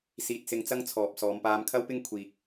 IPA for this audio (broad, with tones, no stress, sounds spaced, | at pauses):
s iː˧ t̚ s ɪ˧ ŋ t͡s ɐ˥ ŋ t͡sʰ ɔː˨ p̚ s ɔː˨˧ m p aː˧ m kʰ ɐ˥ w p ɪ˥ ŋ kʷʰ iː˧ k̚